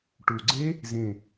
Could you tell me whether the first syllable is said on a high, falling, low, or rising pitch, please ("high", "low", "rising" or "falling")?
low